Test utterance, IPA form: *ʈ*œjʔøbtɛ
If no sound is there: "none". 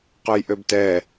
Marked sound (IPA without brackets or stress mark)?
q